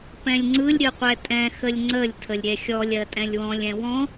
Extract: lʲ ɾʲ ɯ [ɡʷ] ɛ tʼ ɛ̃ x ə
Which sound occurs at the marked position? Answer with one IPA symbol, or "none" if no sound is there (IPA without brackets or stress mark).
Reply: qʷ